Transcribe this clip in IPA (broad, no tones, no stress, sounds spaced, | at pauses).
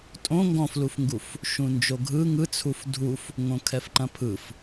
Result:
tʼ õ ŋ ɡ ɔ̃ f l u f ŋ ɡ u f | ʃ ũ n d͡ʒ o ɡʱ ɯ ŋ ɯ t͡sʰ u f dʱ u f | ŋ õ kʰ ɛ f ǃ ɐ̃ pʰ ɯ f